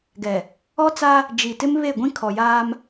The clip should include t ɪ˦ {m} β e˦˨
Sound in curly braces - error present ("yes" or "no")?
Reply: no